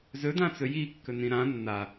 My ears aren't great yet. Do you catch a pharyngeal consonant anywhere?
no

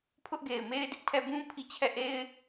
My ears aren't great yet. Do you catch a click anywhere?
no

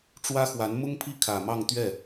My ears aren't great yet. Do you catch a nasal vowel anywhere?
no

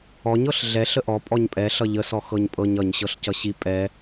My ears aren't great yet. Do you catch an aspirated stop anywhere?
no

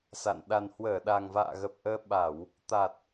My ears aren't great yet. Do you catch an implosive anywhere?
yes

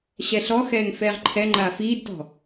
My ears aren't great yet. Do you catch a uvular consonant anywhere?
yes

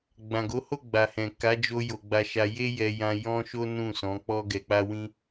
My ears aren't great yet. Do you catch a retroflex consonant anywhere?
no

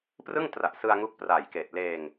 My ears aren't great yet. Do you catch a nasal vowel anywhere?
no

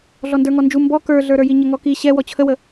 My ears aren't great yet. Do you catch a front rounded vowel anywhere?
no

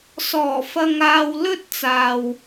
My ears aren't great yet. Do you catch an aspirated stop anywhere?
no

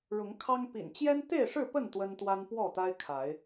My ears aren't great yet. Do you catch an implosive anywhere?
no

